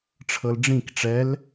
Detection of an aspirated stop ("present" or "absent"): present